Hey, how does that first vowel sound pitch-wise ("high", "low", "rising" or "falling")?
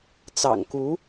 low